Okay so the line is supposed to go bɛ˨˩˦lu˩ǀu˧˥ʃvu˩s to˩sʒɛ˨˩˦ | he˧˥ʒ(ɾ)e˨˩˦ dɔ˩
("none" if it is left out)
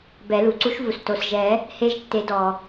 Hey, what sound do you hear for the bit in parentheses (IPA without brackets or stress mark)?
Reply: tː